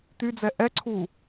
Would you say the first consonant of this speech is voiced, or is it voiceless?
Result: voiceless